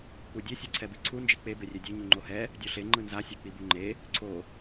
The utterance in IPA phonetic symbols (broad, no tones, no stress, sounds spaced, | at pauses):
k͡p u dʲ e sʲ e ǀʰ ɛ b i ǀʰ u n d͡ʒ i k͡p e b e rʲ e dʲ e ɲ u ŋ͡ǃ o h ɛ | dʲ o ɬ e ŋ͡ǃ ɯ n z a sʲ e k͡p i b u ŋ͡ǃ e | ǀʰ o